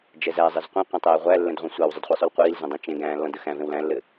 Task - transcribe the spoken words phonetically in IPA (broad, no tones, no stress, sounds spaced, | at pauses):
d͡ʒ ɛ z æ zˤ ɘ z qʷ ɛ̃ qʷ æ̃ tˤ ɛː ʁʷ æ lː ɛ̃ d ʁʷ ẽ sʷ æ w zˤ ɘ d χʷ i sˤ u l qʷ iː l z ɛ̃ dˤ ẽ t͡ʃ ẽ ɡ æ̃ː lː ɔ̃ d ə x æ̃ v ẽ w l æ̃ lː ɘ